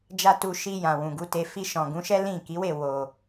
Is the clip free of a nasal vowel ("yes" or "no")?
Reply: no